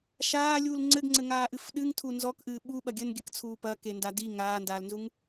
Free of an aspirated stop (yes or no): no